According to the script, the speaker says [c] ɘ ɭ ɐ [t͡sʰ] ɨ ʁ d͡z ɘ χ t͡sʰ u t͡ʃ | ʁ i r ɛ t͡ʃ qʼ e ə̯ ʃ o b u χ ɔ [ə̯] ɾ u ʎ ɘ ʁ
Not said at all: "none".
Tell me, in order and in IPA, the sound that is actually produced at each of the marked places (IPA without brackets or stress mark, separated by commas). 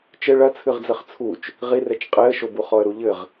t͡ʃ, t͡sʰ, ə̯